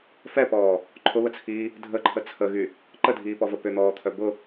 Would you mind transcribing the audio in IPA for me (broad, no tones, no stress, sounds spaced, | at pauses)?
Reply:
f ɛ p ɔː | ǃʰ ʊ β ə t͡sʰ iː | dʱ ə ǃʰ ə t͡sʰ ə ɣ y | ǃ ə dʱ iː p ɔ v ə p ʏ n̪ ɔː t̪ʰ œ b ʊ